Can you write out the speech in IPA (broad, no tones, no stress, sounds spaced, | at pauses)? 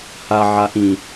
h a ʕ a ʔ ĩ